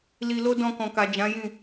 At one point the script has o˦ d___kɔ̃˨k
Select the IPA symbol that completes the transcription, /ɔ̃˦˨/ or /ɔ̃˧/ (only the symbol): ɔ̃˧